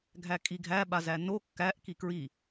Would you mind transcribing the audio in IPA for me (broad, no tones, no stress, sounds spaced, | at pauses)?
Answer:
ɡʱ æ kʼ i ɡʱ æ ɓ a z æ n o kː æ ʔ k i k ɹ i